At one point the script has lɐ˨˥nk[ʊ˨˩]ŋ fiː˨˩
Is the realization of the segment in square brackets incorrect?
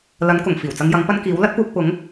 no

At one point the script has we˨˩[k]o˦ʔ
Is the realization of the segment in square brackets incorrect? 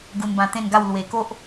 no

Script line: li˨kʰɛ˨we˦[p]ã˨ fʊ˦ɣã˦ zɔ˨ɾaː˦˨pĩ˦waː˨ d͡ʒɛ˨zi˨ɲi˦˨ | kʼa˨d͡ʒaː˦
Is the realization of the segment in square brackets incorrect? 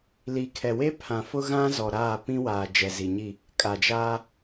yes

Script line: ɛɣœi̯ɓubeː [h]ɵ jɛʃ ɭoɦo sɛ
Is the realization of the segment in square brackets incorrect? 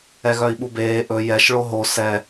yes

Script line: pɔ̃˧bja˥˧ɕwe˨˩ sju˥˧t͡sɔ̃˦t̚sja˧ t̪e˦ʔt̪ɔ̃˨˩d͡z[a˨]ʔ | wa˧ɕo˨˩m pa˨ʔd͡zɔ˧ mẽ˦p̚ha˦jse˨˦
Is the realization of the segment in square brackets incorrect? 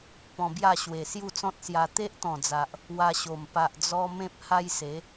no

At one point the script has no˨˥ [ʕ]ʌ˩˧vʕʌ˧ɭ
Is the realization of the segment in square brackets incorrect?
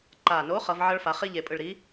yes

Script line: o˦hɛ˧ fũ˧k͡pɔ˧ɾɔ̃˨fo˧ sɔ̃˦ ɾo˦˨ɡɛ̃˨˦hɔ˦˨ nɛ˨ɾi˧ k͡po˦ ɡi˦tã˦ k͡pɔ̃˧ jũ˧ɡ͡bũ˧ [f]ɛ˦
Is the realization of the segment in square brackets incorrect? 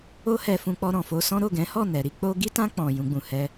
yes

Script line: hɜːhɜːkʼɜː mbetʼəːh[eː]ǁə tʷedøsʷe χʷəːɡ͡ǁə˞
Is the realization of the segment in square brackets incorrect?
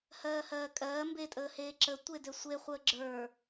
no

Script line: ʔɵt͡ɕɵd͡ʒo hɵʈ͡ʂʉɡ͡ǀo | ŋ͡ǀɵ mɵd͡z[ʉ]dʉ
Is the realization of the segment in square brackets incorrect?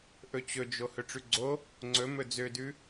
yes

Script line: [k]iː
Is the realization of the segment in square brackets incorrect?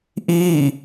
yes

